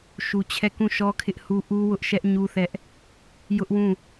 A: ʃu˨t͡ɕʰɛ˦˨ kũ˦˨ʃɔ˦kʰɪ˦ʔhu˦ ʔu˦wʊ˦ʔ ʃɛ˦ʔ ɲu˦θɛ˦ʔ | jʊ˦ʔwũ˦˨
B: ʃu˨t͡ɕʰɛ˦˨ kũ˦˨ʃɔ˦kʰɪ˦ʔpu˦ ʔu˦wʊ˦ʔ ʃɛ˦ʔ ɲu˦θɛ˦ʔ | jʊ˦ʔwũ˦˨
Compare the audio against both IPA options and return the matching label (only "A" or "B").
A